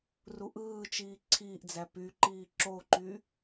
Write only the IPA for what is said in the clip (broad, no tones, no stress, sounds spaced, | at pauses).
r u ʔ ɯː t͡ʃ iː ǀʰ iː ʔ d͡z æ p y ǃ iː ǁ o ǃ y